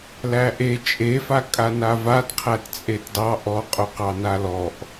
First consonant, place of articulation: alveolar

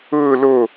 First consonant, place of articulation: alveolar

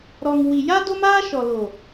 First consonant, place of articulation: alveolar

